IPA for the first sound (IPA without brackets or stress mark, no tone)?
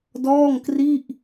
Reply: d